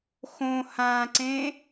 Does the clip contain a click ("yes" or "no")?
yes